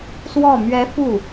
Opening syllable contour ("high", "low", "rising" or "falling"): falling